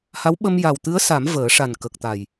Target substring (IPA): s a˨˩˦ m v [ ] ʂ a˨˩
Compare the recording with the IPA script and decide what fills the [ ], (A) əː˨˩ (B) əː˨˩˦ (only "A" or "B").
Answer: B